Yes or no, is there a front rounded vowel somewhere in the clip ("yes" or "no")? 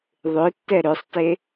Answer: yes